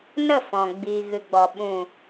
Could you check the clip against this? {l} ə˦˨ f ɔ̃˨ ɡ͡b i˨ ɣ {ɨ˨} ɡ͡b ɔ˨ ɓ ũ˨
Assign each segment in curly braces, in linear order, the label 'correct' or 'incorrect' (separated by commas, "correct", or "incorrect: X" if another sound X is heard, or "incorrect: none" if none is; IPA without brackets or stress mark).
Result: incorrect: n, correct